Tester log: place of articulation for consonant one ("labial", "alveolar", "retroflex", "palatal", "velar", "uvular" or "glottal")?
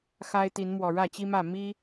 velar